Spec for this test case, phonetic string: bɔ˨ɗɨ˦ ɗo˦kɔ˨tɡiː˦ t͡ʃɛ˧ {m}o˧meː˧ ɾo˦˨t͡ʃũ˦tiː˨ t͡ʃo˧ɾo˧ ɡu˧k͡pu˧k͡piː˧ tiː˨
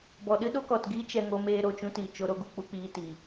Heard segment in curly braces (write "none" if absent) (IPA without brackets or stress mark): ŋ